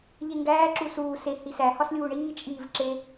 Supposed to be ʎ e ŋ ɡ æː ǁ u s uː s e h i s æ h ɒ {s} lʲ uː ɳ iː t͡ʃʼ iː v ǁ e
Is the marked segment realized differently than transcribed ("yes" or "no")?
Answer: no